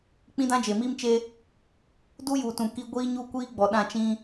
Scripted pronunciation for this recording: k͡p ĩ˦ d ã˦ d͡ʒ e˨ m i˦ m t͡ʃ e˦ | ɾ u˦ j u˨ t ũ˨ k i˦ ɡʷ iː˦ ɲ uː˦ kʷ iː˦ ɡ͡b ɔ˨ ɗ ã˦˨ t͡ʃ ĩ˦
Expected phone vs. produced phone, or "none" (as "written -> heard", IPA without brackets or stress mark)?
ɾ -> d